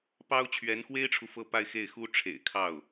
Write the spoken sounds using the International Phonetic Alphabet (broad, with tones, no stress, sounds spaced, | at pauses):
p ɑ˥ ʊ̯ t͡ɕʰ ɥ ɛ˧˥ n x w e˥ ɪ̯ ʈ͡ʂʰ u˨ f ɤ˥˧ p a˥˧ ɪ̯ x e˥˩ ɪ̯ x u˥ ʈ͡ʂʰ ḛ˨˩ ɪ̯ kʰ ɑ˥˩ ʊ̯